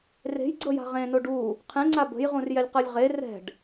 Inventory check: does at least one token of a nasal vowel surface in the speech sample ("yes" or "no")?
yes